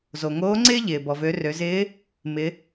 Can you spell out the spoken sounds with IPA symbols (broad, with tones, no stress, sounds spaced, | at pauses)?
z o˩ ŋ oː˧˥ ŋ͡ǀ ɪː˥ ʎ ɪː˩ b ɔ˩ v ø˩˧ r ø˩˧ z ɪː˧˥ | m ɪ˩˧